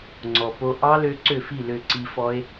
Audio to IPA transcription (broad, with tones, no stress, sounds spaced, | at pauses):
ŋ͡ǀ ɔ˩ p o˧ ʔ ɑ˦˥ l ø˧ ǀ ø˥˩ f i˥˩ l ø˧˩ ǀ i˧ f ɔ˦˥ e̯